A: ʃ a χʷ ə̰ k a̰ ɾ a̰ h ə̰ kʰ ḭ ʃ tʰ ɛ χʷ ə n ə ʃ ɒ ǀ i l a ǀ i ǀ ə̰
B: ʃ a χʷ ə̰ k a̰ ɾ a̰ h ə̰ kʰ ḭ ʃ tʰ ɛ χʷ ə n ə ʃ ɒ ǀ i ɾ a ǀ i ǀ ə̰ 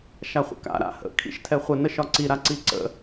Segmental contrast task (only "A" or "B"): B